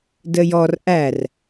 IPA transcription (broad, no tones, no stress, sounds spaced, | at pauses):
d ə j ɔ r ʔ æ r